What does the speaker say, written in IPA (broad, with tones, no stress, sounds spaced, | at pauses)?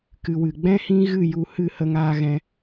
k ɨ˨ w ɨ˨ ɡ͡b ɛ̃˦ h ĩ˦ ɣ ɨ˦˨ j u˧ h ɨ˦˨ h ə˧ ŋ aː˧ ɣ ɛ̃˧